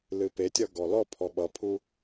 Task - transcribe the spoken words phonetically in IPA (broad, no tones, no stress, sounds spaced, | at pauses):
l ɨ p e tʲ ʌ ɡ ɔ l ɔ pʰ ɔ ɓ ʌ pʰ u